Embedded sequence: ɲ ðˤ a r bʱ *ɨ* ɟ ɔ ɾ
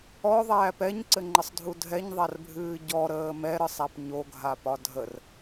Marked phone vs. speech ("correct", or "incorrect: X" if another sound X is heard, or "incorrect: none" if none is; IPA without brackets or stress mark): incorrect: ɨː